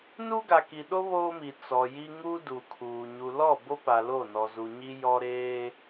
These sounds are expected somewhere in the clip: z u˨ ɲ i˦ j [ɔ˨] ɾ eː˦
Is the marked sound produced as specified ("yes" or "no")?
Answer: no